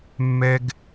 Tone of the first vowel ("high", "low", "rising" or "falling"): high